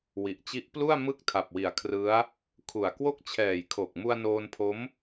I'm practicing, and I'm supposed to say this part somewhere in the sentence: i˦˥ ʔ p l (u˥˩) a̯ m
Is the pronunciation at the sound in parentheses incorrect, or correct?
correct